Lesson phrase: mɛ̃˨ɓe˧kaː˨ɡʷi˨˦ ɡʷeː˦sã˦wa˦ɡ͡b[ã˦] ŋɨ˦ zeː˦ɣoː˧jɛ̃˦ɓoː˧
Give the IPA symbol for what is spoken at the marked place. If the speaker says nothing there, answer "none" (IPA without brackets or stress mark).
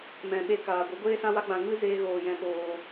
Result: ã˧